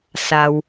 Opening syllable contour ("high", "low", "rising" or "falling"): low